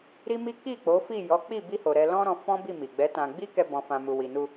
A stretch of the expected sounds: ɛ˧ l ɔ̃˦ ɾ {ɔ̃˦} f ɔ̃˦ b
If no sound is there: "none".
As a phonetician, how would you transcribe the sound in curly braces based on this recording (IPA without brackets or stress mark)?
ɔ̃˧